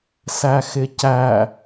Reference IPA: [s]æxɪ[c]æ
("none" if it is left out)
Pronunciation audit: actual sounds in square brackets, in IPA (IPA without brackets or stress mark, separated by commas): s, c